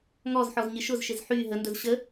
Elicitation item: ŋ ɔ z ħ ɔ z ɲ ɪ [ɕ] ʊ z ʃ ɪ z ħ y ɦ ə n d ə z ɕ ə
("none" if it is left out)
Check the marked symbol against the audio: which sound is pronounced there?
ʃ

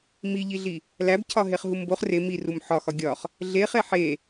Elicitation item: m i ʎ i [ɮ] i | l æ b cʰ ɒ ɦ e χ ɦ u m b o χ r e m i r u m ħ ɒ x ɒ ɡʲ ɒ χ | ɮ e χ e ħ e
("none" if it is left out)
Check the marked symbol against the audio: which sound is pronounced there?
ɮ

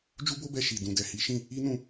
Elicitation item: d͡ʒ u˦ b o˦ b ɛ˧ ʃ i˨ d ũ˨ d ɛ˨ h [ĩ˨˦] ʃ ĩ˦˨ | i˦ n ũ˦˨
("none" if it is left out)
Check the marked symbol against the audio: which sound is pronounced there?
i˨˦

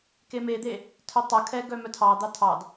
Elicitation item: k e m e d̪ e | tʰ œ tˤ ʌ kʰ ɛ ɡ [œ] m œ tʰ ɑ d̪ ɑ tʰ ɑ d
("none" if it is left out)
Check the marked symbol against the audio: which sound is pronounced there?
œ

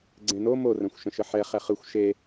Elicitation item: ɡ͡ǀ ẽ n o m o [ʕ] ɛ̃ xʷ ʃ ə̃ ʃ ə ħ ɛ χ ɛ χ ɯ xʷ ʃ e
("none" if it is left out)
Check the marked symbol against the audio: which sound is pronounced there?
r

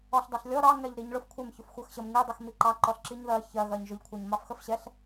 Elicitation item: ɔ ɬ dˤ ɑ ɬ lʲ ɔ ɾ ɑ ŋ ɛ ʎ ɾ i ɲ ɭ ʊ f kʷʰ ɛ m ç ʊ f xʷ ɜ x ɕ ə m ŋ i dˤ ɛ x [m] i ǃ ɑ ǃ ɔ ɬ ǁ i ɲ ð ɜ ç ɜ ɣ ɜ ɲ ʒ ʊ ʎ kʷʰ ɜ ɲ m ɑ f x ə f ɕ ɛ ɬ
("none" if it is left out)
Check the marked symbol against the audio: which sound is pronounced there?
m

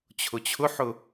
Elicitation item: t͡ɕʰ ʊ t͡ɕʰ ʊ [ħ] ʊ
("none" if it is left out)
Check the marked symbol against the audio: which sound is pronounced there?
ħ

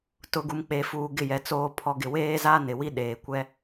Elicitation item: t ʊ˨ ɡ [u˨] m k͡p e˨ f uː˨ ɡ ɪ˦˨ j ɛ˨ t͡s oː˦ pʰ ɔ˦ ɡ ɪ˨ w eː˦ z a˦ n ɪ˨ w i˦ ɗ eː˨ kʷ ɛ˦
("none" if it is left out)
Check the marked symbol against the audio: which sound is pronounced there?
u˨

